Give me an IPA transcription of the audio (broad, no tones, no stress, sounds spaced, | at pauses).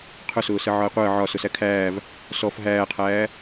qʰ ʊ s ʊː s ə ʕ ɒ e̯ qʷ əː ʕ ɒ s ʊ s æ kʰ æː v | s ɔ f ɦ æː qʰ æː